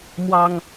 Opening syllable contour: low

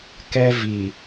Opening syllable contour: high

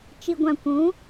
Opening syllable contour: low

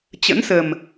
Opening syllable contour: rising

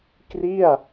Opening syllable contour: falling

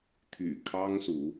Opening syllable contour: low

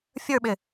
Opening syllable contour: falling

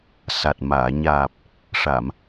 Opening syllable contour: low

